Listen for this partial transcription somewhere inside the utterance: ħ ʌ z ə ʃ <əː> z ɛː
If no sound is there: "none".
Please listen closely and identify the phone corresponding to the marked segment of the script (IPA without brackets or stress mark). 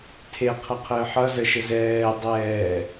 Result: ə